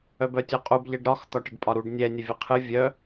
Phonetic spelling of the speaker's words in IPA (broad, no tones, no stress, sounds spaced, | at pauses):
œ b œ tʲ ɔ qʼ u b ʎ ɛ ɖ ɾ ɒ x t̪ ɒ ʈ ə ɖ pʼ ɒ ɾ u ɖ nʲ ɛ nʲ ə vʲ ə qʰ ɨ vʲ œ